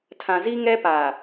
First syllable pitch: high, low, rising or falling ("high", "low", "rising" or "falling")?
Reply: low